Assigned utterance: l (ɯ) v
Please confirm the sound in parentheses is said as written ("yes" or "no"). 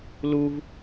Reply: no